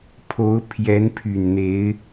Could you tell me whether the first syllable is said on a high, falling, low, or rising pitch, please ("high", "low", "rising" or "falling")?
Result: rising